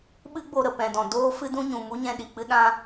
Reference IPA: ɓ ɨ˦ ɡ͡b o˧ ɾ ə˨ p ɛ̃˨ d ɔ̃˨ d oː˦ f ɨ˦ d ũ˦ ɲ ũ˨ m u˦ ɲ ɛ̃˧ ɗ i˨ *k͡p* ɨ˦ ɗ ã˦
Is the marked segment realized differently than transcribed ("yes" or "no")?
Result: no